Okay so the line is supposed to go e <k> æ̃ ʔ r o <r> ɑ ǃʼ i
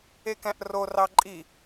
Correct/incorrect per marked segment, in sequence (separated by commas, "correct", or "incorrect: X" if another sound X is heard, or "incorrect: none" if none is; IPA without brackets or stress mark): correct, correct